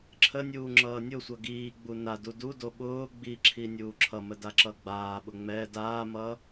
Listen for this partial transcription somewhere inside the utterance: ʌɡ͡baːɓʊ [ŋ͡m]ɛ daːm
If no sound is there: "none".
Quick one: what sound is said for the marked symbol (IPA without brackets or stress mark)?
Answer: ŋ͡m